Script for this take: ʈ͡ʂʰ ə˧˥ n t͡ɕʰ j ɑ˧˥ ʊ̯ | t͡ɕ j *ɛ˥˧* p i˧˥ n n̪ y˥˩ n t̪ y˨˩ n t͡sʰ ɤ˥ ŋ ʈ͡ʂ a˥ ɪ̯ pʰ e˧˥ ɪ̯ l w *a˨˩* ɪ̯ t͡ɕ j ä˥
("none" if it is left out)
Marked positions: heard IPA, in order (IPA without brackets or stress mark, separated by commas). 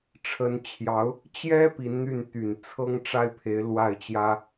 ɛ˥, a˥˩